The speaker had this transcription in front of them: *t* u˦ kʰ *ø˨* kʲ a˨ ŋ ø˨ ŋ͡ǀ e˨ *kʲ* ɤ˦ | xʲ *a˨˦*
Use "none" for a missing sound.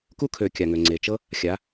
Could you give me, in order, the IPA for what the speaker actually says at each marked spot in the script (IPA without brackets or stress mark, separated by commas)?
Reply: k, ø˨, t͡ʃ, a˨˦